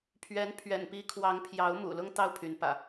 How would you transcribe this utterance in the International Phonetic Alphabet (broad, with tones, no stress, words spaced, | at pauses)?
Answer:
pʰɥɛ˨˦npʰɥɛ̰˨˩npi˨˦ kʰwɑ˨˦ŋpʰjɑ˨˦ʊ̯ mṵ˨˩lʊ˦ŋ t̪ɑ˦ʊ̯pʰy˨˦npä̰˨˩